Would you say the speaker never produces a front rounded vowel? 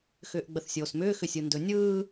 no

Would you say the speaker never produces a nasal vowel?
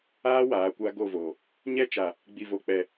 yes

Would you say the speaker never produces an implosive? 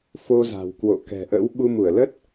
no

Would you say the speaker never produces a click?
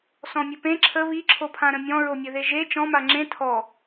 no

